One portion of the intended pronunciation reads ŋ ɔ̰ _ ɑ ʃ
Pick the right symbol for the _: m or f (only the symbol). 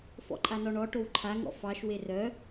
f